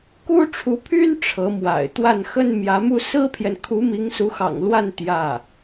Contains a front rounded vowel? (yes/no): yes